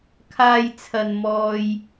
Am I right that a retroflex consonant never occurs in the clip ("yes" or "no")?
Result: yes